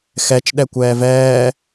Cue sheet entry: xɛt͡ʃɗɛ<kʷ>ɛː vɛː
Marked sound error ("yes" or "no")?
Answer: no